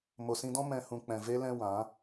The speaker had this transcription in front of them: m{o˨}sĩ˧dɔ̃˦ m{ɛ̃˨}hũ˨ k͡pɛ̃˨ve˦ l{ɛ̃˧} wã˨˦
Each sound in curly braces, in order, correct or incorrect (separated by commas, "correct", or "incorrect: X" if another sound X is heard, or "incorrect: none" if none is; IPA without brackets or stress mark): correct, correct, correct